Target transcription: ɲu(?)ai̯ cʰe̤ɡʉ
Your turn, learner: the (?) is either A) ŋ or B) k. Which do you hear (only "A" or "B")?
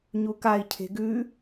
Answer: B